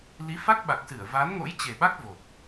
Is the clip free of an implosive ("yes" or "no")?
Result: no